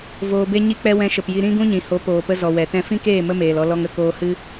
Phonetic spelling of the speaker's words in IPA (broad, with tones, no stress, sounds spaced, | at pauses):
v oː˨ b e˧ ɲ i˧ k͡p ɛ˧ w ɛ̃˧ ʃ ə˨ p j i˧ ɾ ĩ˦ ɡ ũ˦ ɲ ĩ˨ h o˨˦ p oː˨ p ə˧ z ɔ˨ w ɛ˨ t ɛ̃˧ f ĩ˦ k eː˦˨ m ə˦ m eː˨ l ɔ˧ l ɔ˧ ŋ ə˦˨ k oː˧ h ɨ˦